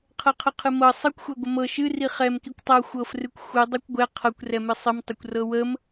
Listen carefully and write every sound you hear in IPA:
qʰ ɤ qʰ ə qʰ ɨ m ɤ sˤ ɨ kʷ xʷ ɛ ɡʷ ə m ɤ ʃ ɨ r i χ ɛ m k i kʷ tˤ ɤ xʷ ɤ f r ɨ kʷ xʷ ɨ dˤ i kʷ ɡʷ ɛ qʰ ɤ kʷ r ɛ m ɨ sˤ ɨ m tˤ ə kʷ r ɤ w ə m

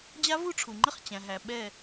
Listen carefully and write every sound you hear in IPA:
d͡ʑ a˦˥ v u˦˥ ʈ͡ʂʰ u˩ ŋ͡ǃ ə˦˥ χ t͡ɕ æ̃˩ ɦ æ˩ ɓ ɛ˧˩

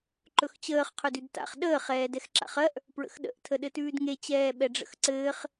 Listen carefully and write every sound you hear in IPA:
ǃ ɵ x t͡ɕ əː χ qʰ ɵ d ʉ d t a̰ χ ɗ əː χ ɛː d ɛ x ǁ a̰ χ ɜ ʔ | p ɹ ə̰ x ɗ ə̰ ʔ tʰ ə ɗ ɘ t ʉː d ŋ e t͡ɕ ɛː ɓ ɛ ɖ͡ʐ ə̰ x ǀ ɘː χ

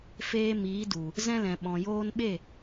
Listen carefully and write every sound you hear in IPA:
f eː˧ m iː˨˦ d u˨ | z ɛ̃˧ l ɛ̃˨ ɓ ɔ̃˨ j oː˧ n ɓ e˦˨

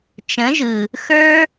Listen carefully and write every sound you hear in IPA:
t͡ʃ ə̃˨˦ ʒ ɯ˨ | x ə˞˦

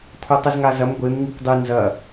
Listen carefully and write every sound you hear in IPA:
kʷʰ a tˤ ɨ z ŋ a z ɐ m ɡʷ e m ŋ i kʷ dˤ ɨ n z ɐ

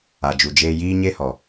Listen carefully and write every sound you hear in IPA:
a˨ d͡ʒ u˨ d͡ʒ eː˧ j iː˦ ɲ e˦ h ɔ˨

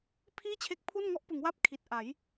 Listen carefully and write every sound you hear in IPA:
pʰ iː˥˩ t͡ɕʰ e˦˥ k̚ pʰ u˥˩ n ŋ ɔ˥˩ ʔ p ɯ˩˦ ŋ w a˦˥ p̚ kʰ i˨˩ t̚ ʔ a˩˦ j

